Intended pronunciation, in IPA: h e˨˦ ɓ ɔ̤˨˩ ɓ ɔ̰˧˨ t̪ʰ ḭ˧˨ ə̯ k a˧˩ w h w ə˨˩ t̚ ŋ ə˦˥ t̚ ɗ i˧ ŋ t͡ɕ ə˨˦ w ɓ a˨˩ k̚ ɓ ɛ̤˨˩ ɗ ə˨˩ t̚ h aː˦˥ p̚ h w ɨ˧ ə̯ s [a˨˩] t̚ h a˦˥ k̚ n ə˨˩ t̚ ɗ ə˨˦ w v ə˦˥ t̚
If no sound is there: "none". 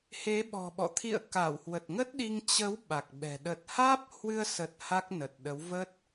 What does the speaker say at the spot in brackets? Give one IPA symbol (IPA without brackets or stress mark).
ə˨˩